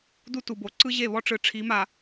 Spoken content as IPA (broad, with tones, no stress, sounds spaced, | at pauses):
d u˦ t u˨ b o˨ ǀ ɯ˦ ʑ e˦˨ β ɔ˦ ʈ͡ʂ ɯ˨ ʈ͡ʂʰ i˨˦ m a˨